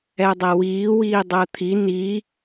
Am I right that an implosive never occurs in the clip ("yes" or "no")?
yes